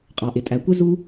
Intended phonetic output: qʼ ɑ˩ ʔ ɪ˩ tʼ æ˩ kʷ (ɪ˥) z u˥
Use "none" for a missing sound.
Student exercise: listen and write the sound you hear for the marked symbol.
ɪ˥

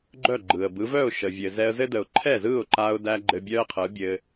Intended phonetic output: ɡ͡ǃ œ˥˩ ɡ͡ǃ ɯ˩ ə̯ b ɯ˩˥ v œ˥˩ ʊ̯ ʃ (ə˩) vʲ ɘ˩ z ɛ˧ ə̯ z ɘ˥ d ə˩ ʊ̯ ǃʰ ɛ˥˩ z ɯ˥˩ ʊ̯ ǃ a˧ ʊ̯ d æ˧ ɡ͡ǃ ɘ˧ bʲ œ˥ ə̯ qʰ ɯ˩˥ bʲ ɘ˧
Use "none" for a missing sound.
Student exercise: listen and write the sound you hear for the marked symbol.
ə˩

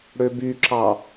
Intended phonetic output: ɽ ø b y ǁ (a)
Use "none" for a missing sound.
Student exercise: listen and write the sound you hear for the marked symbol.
ɑ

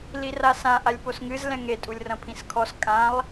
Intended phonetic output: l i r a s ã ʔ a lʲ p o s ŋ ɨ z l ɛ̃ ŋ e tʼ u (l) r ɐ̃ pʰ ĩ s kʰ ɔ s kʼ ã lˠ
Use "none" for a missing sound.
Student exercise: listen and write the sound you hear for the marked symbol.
lʲ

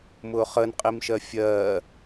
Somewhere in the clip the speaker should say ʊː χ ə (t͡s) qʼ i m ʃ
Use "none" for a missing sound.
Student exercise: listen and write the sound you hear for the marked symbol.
n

